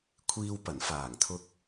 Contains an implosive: no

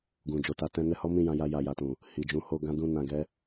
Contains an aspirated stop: no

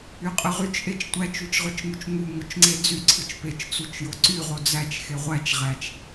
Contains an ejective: yes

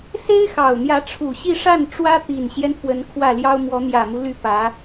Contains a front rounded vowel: yes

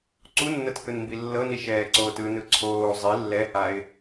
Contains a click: yes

